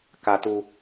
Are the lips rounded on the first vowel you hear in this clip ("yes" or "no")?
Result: no